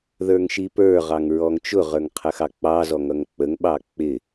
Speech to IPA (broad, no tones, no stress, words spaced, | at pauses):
ðə˞ŋʃipə˞ʁɑŋ ɹɔŋt͡ʃʊʁə˞ŋ qʰəxɑk͡pɑzɔ ŋʌŋk͡pəŋɓɑ k͡pɪ